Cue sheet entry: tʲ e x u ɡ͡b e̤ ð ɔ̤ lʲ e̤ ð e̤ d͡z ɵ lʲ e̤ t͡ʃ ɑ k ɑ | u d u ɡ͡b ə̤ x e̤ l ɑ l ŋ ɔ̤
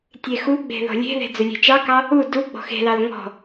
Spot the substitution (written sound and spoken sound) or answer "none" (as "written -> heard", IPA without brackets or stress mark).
ə̤ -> ɔ̤